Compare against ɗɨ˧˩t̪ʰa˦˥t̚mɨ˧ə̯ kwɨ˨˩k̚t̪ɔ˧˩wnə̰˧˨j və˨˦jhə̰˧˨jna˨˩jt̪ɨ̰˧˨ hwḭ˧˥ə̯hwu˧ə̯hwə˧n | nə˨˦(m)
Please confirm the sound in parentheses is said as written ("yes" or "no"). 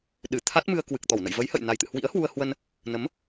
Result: yes